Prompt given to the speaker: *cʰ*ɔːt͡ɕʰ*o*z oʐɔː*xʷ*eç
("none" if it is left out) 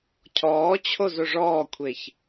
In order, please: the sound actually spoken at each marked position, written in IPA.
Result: cʰ, o, kʷʰ

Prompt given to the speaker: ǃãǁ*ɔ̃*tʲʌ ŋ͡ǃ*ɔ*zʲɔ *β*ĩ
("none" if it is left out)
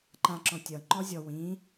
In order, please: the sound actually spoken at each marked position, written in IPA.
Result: ɔ̃, ɔ, w

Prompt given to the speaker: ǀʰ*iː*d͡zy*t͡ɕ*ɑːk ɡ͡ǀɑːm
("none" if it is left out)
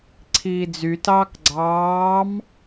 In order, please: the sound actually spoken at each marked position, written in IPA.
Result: iː, t

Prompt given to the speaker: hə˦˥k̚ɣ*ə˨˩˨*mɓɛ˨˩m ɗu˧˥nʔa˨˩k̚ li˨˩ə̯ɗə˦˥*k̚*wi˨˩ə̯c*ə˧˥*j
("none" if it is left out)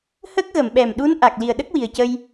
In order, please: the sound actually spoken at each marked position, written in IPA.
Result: ə˨˩˨, k̚, ə˧

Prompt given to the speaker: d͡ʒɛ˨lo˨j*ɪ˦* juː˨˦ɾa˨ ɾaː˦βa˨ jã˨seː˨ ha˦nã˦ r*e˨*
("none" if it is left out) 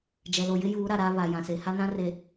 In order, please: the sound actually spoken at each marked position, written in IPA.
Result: ɪ˦, e˨

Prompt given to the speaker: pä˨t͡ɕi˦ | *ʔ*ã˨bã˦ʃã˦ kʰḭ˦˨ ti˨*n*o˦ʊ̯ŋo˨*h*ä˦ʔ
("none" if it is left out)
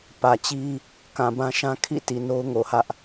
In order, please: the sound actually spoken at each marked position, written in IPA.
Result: k, n, h

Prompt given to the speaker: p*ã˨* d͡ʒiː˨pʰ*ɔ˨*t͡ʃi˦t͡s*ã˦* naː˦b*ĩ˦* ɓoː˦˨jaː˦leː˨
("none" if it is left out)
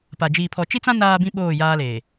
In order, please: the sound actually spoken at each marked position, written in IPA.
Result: a˨, ɔ˨, ã˦, ĩ˦

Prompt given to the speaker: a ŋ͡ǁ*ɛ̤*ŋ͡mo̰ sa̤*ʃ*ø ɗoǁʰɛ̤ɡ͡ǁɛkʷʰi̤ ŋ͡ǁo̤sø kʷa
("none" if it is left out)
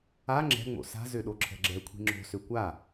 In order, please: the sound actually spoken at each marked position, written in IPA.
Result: ɛ̤, z

